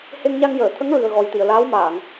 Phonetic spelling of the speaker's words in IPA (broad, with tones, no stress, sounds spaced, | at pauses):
h e˧ ŋ ɲ a˧ ŋ j əː˨˩˨ t̪ʰ ə˧˥ ŋ ɹ ɨ˨˩ ə̯ ɣ ɔ˨˩ j t̪ i˨˩˨ ə̯ l aː˧˥ w m aː˨˩˨ ŋ